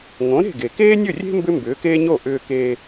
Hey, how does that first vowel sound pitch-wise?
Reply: rising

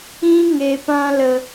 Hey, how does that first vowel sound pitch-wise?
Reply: high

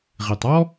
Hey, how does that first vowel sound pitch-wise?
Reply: low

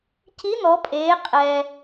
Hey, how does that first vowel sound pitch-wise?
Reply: rising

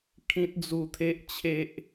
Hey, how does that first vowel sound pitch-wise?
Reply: high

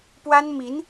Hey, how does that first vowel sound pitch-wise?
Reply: high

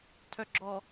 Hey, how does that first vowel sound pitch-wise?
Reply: low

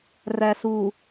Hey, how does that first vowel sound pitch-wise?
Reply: low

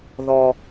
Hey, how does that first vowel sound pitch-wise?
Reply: low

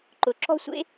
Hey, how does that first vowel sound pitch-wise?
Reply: rising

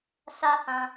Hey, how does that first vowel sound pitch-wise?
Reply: high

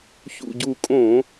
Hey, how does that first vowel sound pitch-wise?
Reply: low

